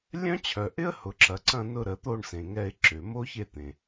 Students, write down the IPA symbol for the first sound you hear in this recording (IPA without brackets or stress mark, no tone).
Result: lʲ